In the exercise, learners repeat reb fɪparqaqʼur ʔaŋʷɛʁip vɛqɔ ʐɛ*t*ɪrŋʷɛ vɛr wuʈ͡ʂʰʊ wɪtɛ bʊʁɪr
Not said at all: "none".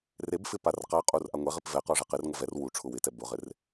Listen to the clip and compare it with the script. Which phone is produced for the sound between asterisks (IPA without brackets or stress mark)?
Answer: q